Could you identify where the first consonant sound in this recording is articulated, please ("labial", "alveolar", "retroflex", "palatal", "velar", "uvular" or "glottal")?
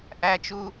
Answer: glottal